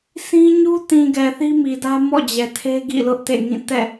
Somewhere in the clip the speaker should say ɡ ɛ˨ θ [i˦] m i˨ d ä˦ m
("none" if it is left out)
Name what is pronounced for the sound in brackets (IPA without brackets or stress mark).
i˦